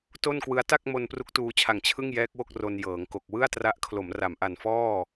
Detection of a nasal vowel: absent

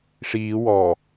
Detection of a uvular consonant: absent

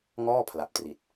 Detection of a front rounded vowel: absent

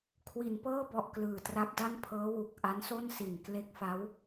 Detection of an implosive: absent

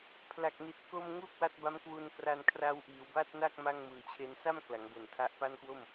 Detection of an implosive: absent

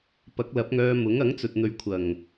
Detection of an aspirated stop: present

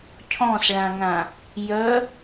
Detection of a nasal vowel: present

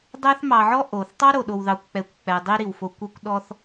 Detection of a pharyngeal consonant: present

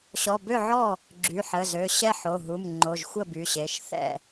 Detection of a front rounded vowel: present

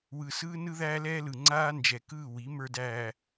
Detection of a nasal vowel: absent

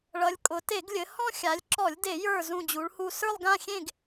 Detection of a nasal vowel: present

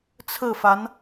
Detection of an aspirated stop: present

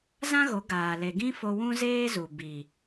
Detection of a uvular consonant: absent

